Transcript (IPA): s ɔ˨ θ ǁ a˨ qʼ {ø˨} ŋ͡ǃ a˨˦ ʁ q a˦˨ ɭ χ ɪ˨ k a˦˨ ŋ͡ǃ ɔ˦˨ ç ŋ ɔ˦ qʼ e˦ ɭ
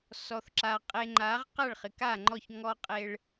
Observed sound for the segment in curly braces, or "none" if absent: e˨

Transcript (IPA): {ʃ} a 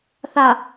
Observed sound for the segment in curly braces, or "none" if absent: θ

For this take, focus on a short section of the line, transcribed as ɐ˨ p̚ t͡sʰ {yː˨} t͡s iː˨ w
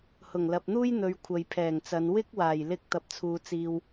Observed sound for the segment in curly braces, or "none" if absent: uː˨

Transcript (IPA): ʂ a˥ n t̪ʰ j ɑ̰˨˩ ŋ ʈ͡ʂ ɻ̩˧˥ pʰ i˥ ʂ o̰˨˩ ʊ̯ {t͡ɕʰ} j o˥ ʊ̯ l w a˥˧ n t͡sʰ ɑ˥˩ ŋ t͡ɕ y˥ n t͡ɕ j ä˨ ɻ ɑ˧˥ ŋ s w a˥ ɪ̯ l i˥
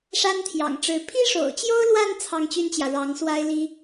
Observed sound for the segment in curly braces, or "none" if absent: t͡ɕ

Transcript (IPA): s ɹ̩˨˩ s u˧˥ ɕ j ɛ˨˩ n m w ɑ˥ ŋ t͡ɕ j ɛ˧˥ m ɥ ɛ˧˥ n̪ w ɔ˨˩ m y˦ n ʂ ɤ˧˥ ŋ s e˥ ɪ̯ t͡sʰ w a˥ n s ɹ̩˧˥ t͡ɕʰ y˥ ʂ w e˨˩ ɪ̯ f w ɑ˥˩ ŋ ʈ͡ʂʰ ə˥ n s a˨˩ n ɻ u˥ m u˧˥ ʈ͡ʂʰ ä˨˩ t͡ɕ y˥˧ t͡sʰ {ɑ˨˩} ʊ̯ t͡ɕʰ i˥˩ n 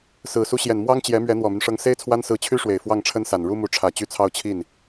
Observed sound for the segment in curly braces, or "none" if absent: ɑ˥˧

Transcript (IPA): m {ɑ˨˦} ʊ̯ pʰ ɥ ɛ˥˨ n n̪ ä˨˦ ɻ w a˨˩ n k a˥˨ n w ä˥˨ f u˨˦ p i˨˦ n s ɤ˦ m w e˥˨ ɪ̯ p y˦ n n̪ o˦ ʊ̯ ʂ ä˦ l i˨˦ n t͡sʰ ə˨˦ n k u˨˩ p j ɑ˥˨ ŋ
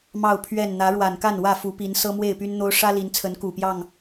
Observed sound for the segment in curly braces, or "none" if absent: ɑ˥˨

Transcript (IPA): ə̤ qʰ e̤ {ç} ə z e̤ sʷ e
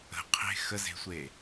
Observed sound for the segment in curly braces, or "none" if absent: x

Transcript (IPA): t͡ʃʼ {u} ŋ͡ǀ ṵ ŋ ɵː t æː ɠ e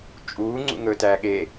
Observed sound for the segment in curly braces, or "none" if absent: uː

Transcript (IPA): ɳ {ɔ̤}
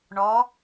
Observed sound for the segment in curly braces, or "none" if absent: ɔ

